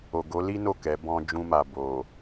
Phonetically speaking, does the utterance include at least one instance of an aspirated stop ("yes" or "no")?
no